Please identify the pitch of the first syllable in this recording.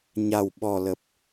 low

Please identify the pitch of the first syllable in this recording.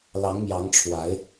rising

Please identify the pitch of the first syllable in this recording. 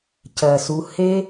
low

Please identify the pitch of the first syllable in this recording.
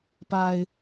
low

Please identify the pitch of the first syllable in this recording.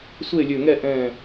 falling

